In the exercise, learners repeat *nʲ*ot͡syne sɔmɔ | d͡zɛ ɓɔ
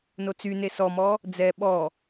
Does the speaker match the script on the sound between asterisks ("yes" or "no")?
no